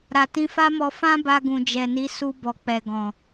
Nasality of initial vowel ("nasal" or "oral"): oral